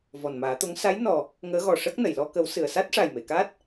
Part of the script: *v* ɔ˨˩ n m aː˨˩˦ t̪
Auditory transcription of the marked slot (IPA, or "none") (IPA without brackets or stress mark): v